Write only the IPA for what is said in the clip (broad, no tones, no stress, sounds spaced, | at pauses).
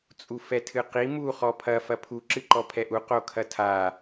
t͡sʼ u f ɛ tʰ ɨ q i m u χ ɔ pʰ ɐ f ɐ pʰ u ǁ ɨ ǃ ɔ pʰ ɛ ʔ u q o kʰ ɐ tʰ a